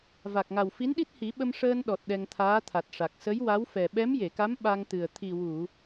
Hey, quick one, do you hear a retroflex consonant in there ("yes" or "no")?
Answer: yes